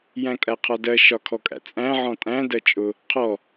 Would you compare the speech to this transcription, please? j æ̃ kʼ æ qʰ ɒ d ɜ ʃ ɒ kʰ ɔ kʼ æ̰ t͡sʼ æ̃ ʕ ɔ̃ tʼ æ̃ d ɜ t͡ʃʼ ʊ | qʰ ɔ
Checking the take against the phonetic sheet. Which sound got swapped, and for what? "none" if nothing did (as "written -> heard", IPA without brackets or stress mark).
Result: none